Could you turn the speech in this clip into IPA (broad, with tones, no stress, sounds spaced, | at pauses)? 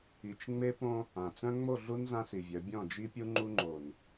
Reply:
i˨ t͡ʃ ŋ͡m e˦ p õ˦ | ã˨ t͡s œ̃˦ ŋ͡m o˦˨ ɮ u˦ n z ã˦ s i˨ vʲ œ˨˦ bʲ ɔ̃˦˨ d͡ʒ i˦ pʲ u˦ ŋ͡ǃ u˦ ŋ͡ǃ o˨ n